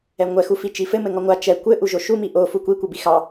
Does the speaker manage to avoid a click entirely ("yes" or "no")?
yes